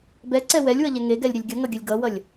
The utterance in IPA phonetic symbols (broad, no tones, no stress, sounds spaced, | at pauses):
b ɛ ǀ ɛ w ɛ lʲ w ʌ ʎ ɛ ŋ e ɡ ɛ lʲ ɾʲ ə lʲ ɡʲ ʌ ŋ ʌ ɡʲ ə lʲ ɡ ʌ w ʌ lʲ